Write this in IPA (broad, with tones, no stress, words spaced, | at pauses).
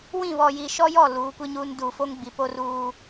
wĩ˦˨βɔ˨ji˨ ʃɔ˦jɔ˦˨ luː˨˦kʷi˦ɲuː˦n duː˨fo˦ŋɡ͡bi˨ po˦ruː˦